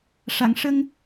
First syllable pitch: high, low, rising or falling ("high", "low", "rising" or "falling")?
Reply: low